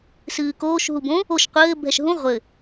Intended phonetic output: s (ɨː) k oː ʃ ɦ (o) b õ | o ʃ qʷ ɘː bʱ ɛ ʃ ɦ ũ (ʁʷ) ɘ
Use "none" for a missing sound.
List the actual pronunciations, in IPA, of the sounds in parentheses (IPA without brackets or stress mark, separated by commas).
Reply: ɨː, u, ʁʷ